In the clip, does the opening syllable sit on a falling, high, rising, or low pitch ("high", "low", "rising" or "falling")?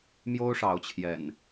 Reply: high